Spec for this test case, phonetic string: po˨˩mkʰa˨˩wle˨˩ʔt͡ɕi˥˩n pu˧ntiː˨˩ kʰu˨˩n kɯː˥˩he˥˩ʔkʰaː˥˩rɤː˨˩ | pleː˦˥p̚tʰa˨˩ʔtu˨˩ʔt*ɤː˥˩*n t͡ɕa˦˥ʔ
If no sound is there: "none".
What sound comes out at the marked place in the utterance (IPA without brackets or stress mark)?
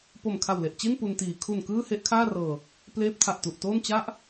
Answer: oː˥˩